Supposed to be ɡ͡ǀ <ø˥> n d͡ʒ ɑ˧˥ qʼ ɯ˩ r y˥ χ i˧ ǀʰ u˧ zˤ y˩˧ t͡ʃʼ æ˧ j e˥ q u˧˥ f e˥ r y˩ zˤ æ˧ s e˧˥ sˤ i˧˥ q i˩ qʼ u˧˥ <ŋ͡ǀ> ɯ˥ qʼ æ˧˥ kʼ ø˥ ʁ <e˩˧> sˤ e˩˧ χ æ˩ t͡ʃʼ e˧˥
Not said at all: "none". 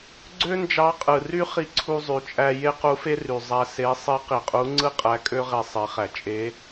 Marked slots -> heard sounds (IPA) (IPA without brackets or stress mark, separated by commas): ø˥, ŋ͡ǀ, e˧